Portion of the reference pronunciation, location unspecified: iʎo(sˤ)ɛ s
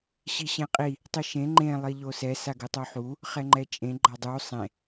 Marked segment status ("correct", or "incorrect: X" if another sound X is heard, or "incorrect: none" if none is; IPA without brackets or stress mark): incorrect: s